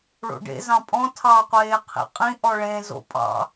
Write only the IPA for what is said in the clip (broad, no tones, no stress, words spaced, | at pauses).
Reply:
ɭo̰ɖḛzɑ̃ pʼɔ̃ tʰɑqʷeː qʰḭqʼĩʔɔ ɭẽzo̰ pʼɑ̰